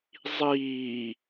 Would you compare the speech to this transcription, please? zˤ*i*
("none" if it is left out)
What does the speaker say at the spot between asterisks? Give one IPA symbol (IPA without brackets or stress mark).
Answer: iː